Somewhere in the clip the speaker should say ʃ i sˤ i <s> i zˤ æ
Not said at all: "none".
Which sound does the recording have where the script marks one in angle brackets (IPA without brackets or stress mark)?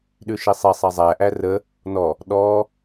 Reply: sˤ